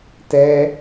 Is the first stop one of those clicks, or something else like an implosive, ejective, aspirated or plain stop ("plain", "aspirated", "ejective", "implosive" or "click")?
plain